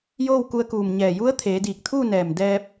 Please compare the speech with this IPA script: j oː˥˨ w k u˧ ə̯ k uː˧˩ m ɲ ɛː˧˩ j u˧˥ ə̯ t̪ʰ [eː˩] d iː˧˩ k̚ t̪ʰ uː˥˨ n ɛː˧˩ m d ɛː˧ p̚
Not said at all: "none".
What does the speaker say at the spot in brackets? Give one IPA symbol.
eː˩˧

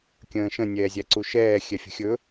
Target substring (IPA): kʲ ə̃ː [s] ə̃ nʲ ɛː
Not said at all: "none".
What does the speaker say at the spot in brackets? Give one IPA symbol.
ʃ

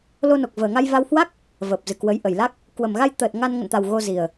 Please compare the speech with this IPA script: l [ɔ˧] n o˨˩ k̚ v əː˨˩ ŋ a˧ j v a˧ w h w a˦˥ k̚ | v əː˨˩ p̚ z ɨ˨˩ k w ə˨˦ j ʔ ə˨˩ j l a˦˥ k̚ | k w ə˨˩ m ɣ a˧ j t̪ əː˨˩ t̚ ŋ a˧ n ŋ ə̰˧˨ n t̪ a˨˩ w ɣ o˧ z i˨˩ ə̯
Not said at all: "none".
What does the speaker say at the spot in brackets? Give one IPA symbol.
o˧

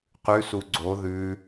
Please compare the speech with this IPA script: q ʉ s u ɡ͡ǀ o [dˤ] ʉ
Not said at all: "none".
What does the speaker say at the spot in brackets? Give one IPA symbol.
ð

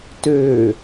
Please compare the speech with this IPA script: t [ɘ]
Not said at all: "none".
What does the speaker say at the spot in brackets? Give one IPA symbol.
ø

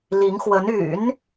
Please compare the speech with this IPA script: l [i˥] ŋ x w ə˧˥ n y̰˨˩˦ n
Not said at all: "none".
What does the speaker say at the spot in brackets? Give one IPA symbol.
i˧˥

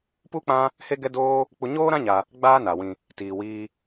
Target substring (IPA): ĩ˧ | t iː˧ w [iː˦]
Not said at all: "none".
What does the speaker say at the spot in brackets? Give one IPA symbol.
iː˦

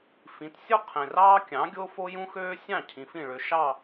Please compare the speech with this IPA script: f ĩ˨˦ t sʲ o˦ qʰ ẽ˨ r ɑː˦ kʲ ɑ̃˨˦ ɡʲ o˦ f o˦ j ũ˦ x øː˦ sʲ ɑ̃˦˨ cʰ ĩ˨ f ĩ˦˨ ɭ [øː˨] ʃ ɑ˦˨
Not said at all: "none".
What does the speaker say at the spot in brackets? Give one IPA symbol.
ø˨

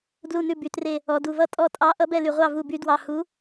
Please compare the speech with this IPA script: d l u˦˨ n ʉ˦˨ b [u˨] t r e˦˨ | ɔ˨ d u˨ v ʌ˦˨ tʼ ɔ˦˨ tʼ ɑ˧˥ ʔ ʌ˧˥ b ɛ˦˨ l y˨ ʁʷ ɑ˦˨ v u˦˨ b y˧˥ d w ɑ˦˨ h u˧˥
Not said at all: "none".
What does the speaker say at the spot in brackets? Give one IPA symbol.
y˨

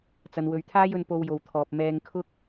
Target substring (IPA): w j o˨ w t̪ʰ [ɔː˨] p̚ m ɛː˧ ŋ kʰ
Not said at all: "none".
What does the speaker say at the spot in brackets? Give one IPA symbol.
ɔː˨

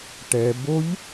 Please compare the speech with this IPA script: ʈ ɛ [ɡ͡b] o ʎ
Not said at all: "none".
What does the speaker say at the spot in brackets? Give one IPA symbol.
b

